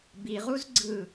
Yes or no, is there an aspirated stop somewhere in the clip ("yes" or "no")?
no